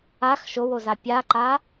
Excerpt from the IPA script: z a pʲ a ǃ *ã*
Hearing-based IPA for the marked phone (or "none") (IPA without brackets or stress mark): a